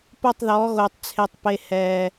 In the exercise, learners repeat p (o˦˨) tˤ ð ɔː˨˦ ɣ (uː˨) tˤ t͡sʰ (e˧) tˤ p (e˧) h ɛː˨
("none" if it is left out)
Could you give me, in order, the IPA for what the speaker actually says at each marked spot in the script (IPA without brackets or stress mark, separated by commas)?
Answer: o˦˨, oː˨, e˨, e˨